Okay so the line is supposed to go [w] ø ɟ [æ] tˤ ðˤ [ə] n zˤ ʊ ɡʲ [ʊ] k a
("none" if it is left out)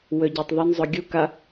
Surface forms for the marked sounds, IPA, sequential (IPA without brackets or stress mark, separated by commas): w, œ, ə, u